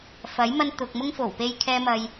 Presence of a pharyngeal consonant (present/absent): absent